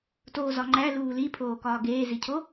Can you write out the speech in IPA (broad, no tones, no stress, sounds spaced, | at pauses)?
t oː z ɒ ŋ͡ǃ æ l uː l i pʰ oː k ɒː ɡ eː z i cʰ o